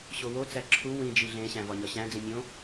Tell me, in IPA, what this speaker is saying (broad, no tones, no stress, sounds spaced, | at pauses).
ɕ o w o t͡s æ ǁʰ u w ĩ d͡ʒ i ɮ ẽ ɕ æ̃ v ɒ ɲ ɒ ɕ æ̃ d͡z ĩ mʲ õ